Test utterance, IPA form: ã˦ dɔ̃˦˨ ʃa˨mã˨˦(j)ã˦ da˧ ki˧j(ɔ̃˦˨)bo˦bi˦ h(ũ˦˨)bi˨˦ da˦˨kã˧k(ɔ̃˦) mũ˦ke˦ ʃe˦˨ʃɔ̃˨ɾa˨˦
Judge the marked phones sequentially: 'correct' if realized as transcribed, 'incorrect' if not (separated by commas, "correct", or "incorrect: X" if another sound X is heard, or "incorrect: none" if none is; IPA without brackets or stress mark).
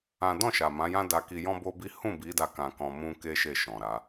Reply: correct, incorrect: ɔ̃˦, correct, incorrect: ɔ̃˧